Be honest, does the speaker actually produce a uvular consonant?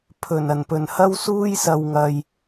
no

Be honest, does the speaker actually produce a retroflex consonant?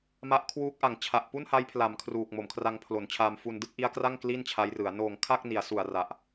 no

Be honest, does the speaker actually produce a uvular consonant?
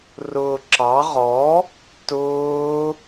yes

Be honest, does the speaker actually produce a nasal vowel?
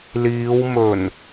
no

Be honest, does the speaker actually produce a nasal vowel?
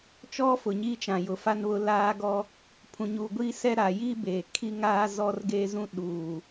yes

